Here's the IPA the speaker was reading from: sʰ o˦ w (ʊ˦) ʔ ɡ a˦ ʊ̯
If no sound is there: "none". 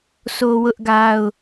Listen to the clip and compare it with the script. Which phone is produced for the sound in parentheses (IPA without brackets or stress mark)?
ʊ˦